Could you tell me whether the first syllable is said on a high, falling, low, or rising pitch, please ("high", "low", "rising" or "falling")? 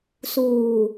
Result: low